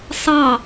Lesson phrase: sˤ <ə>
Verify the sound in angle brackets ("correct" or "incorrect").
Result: incorrect